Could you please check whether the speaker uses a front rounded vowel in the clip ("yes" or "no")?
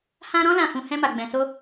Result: no